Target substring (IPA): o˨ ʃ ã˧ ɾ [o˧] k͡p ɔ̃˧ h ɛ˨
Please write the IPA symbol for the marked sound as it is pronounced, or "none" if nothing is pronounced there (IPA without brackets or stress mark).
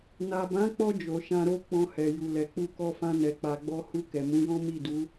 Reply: o˦